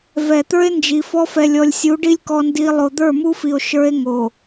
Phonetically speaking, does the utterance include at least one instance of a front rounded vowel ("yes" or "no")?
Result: no